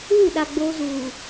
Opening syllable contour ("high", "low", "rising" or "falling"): falling